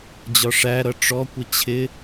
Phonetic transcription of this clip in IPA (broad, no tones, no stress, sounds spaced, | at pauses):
d͡ʑ ɒ ʂ æ ɾ ʌ ʈ͡ʂ ɔ kʷ ɪ t͡ɕʰ ɪ